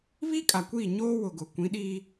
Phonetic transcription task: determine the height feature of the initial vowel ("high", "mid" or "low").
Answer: high